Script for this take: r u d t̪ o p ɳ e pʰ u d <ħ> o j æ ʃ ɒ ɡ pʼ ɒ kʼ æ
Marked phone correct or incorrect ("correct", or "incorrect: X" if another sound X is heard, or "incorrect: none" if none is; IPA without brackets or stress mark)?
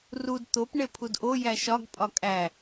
incorrect: ʔ